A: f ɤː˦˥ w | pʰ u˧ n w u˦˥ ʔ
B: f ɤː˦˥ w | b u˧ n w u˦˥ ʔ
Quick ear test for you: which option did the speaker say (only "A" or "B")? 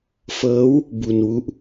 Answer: B